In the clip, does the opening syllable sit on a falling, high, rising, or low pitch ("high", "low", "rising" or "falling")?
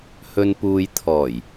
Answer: low